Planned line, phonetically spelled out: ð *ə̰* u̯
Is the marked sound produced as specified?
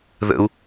yes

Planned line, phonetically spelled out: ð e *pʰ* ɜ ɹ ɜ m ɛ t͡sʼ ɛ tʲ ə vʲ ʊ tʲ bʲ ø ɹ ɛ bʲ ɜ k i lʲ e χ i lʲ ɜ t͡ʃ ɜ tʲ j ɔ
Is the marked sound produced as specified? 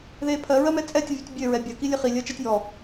yes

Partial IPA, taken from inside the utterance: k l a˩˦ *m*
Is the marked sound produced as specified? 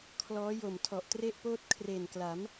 yes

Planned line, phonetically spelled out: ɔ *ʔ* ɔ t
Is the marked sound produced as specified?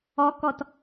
no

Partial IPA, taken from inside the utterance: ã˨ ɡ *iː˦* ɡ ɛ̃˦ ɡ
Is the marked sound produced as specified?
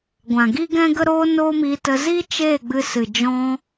no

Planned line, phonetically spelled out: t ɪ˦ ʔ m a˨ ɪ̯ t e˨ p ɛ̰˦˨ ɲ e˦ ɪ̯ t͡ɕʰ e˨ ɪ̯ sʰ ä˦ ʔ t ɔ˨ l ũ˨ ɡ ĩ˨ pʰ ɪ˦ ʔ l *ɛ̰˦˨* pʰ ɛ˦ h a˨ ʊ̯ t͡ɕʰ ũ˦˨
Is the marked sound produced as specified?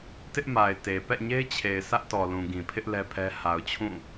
no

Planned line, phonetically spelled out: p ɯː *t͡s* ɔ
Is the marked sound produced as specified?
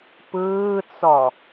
yes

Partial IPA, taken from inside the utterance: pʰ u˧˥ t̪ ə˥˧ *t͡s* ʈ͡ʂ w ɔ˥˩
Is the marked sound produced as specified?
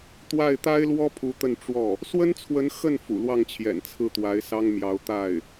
no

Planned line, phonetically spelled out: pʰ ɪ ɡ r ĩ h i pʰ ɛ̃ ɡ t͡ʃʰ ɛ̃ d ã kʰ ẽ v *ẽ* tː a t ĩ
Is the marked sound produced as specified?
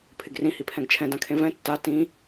no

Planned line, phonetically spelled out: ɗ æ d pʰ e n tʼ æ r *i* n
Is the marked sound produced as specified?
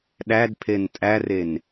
no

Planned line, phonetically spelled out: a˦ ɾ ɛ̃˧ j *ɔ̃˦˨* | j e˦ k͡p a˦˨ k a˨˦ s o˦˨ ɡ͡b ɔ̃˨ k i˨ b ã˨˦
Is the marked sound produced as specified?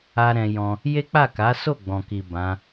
no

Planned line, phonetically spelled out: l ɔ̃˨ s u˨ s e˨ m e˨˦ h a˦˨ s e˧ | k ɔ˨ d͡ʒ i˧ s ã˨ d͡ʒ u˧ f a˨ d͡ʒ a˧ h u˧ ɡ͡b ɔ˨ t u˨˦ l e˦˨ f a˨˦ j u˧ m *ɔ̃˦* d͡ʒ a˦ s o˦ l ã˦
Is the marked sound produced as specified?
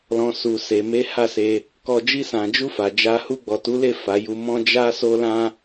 yes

